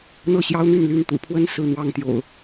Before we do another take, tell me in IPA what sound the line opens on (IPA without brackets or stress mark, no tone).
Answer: n̪